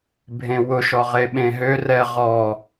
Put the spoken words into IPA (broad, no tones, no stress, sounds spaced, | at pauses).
bʱ ẽ w ʊ ʃ ɔ ʁ e ɓ ẽ ɦ ø r ɛ ʁ ɔ